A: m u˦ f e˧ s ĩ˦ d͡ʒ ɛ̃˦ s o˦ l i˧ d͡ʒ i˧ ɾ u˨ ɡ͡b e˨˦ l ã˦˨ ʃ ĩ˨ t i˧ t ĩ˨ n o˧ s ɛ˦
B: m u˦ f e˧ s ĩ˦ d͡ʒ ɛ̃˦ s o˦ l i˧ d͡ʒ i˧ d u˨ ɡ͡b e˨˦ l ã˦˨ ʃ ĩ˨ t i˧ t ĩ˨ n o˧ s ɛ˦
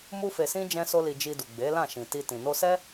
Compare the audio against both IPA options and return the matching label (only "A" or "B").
B